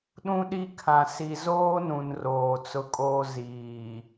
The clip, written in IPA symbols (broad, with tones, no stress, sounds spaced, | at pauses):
ɗ ũ˦ ɗ i˦ kʰ ã˨ s i˨ z oː˦ n ũ˨ n r oː˨ t͡s ʊ˦ kʼ oː˦ z iː˨